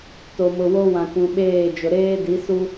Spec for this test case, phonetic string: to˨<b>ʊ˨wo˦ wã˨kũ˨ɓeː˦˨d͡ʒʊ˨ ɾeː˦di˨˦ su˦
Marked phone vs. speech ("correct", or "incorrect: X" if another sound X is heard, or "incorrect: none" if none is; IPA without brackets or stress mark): incorrect: m